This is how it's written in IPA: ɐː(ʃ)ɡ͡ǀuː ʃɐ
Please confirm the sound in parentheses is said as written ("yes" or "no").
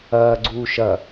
no